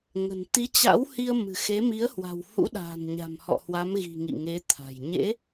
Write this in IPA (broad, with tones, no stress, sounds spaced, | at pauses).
ŋ ə̤˨˩ n t̪ i˨˦ t͡ɕ a̰˧˥ w h i˧ ə̯ m ɨ̤˨˩ x e˨˦ m i˨˦ ə̯ h w a̤˨˩ w h ṵ˧˥ ɗ a̤ː˨˩ n ɲ a̤˨˩ m h ɔ̰˧˨ h w a˨˦ m ɣ i̤˨˩ ŋ ḭ˧˨ ŋ e˨˦ t̪ʰ a̤˨˩ j ɲ ḛ˧˥